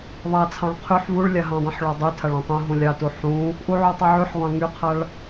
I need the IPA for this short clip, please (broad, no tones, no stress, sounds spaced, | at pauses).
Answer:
ðˤ a t͡sʰ ɑ̃ ɭ qʰ y ħ v u ɭ lʲ a ɦ ɑ̃ dˤ ũ ħ ɭ ɔ dˤ y tʰ a ɭ ɔ̃ tˤ ũ ɦ ũ lʲ ɑ t u ħ ũ | ʔ u ʕ u tˤ u ʕ y ħ ʁʷ ɑ̃ ŋ y qʰ a ɭ